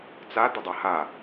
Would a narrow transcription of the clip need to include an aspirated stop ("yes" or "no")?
no